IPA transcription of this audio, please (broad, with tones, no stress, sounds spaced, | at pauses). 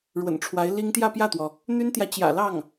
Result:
ɻ w ə̰˨˩ n ʈ͡ʂʰ w a˧˥ ɪ̯ l i˥ ŋ t̪ j ä˥˧ p j ä˥˩ t̪ w ɔ˩ | n̪ y˥ n t̪ j ä˨ t͡ɕ j ä̰˨˩ l ɑ˥˩ ŋ